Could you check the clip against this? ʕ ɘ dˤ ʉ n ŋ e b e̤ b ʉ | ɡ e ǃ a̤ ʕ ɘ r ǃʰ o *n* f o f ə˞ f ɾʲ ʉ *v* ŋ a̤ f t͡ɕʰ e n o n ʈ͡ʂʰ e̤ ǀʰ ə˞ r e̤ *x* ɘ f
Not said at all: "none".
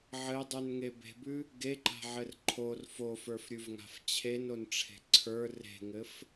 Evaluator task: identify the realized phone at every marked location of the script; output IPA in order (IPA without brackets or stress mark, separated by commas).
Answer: r, v, ŋ